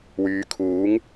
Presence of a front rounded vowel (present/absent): present